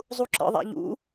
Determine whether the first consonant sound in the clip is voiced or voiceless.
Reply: voiced